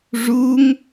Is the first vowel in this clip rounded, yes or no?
yes